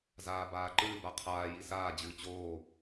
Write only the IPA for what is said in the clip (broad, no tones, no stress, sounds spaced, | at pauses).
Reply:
z aː b aː ǃ ɨː b a qʰ aː j i s aː d͡ʑ ɨː t͡ɕ oː